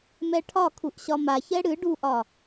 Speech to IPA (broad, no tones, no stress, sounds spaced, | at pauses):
m ɛ ʈʰ ɒ kʰ u ʔ ɕ ɒ m a ç ɛ ɽ ɨ ɖ u ʔ ɒ